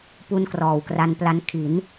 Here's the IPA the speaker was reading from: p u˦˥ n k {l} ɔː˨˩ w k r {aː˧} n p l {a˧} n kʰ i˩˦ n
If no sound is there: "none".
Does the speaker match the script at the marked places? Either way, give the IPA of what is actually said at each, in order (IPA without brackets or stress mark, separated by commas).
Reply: r, a˧, a˧